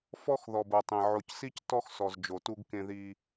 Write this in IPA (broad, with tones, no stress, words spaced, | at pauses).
fɔ˦x ðɔ˨bo˨tˤẽ˨ ʕo˨csi˦c tɔ˦xsɔ˨z d͡ʒo˨tu˦ɡ kẽ˦ði˦